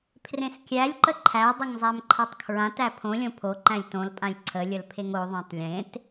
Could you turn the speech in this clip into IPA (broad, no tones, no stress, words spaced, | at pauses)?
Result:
pʰrẽskʲælʲǃə ǃʰædˤəŋ zˤæmǃʰatˤkʰɹãtæ pʰõlʲõ pʰoǃæ̃lʲ tõlpʼãlʲ ǀʰəlʲəl pʰeŋoðˤæ̃tˤ lʲẽt